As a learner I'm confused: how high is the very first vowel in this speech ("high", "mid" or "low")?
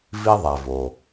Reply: high